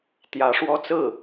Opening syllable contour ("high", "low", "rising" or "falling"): rising